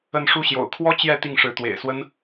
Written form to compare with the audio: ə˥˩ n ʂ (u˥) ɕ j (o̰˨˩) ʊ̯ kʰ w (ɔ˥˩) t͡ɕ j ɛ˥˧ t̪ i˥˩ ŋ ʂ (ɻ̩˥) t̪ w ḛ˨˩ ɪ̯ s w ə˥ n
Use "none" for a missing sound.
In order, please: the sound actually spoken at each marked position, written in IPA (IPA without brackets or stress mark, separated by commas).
u˥, o̰˨˩, ɔ˥, ɻ̩˧˥